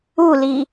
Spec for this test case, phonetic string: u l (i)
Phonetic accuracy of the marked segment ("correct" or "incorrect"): correct